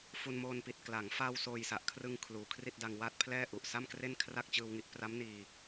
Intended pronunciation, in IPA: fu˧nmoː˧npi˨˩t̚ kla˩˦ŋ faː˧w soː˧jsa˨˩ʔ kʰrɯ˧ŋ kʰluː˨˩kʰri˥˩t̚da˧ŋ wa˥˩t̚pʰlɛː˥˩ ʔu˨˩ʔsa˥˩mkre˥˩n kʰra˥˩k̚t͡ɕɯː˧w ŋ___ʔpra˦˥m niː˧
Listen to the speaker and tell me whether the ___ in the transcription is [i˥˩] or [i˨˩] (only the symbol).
i˥˩